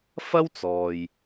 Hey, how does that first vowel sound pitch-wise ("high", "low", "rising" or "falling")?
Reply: high